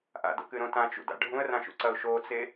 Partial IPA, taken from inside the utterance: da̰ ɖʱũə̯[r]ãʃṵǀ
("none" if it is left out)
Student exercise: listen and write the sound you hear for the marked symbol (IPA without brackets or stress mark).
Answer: r